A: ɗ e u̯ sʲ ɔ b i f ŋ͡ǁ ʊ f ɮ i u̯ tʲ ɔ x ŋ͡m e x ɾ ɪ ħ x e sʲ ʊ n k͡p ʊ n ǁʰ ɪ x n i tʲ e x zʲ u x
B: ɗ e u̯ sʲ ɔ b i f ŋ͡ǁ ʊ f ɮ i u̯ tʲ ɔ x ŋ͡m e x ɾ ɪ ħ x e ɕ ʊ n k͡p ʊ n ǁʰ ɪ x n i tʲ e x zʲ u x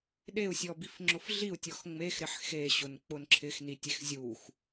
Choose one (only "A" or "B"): B